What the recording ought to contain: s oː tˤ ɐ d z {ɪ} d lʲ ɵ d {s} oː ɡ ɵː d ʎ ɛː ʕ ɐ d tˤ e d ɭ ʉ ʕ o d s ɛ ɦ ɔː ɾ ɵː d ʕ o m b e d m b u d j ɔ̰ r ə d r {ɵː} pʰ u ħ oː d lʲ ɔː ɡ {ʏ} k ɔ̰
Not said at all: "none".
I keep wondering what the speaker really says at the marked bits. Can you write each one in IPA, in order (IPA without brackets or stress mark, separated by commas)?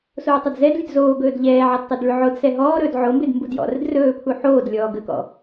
ɛ, z, ɵː, ə